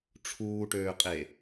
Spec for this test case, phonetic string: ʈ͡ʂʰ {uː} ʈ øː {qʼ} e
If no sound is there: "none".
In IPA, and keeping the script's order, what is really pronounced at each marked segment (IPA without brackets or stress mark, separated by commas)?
uː, qʼ